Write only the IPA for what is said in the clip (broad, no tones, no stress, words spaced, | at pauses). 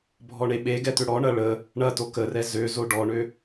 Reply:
bʱɔɳeɓeɡɛ t̪øɽɔɳɐ ɭə | ɳɐto kərɛ zøzo ɖɔɳø